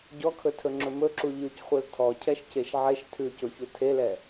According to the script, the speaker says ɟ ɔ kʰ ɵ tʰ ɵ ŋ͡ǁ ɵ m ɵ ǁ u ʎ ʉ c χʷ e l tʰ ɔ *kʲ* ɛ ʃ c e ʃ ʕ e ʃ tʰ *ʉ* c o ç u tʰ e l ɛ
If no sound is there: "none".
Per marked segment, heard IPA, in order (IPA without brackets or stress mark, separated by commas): cʰ, ʉ